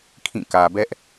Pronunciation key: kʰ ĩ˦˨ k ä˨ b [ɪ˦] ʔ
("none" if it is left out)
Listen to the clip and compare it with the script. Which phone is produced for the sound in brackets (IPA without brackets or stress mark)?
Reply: ɛ˦